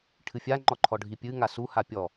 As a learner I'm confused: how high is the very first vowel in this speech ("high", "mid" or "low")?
high